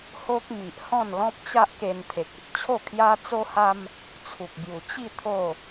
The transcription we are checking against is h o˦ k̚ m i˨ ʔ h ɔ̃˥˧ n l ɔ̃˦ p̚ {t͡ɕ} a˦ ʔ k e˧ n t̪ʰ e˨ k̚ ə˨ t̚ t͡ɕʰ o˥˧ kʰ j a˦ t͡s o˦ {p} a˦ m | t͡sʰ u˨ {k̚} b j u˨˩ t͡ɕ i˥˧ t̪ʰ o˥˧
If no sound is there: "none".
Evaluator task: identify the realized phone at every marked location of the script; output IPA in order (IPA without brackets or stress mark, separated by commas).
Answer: t͡ɕ, h, k̚